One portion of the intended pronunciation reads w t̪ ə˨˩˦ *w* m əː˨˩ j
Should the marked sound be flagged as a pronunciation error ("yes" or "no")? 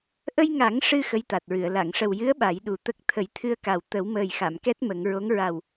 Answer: no